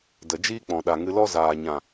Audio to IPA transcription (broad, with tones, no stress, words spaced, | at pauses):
də˨d͡ʒiː˦k͡pɔ̃˨ ɗa˨ŋɨ˧lɔ˦ zaː˨ɲã˨